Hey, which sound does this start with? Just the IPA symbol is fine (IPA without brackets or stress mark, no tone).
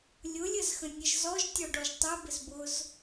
lʲ